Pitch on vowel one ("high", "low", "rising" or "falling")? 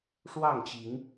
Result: falling